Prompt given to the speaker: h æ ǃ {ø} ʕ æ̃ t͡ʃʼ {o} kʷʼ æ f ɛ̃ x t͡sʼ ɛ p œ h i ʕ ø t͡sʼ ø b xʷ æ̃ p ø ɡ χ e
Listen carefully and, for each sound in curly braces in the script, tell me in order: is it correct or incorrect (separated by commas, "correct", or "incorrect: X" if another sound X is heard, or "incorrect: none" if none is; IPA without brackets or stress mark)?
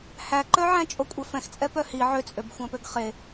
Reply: incorrect: œ, correct